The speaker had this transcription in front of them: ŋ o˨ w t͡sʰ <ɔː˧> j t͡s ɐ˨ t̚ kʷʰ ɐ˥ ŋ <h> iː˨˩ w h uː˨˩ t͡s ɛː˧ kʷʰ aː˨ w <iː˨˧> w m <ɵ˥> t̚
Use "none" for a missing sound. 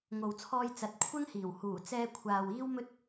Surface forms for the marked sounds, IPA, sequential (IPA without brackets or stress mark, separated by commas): ɔː˧, h, iː˥, ɵ˥